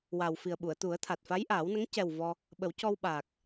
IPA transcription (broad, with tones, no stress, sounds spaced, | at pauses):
w a˨˩ w f i˨˩ ə̯ ɓ u˨˩˨ ə̯ t̪ u˨˩˦ ə̯ t̪ʰ a˨˩ t̚ f a˧˥ j ʔ aː˨˩˦ w n ə˧˥ ŋ c ɛ˨˩ w v ɔ˧ | ɓ ə˨˩˦ w c ɔ˧ w ɓ aː˨˩ k̚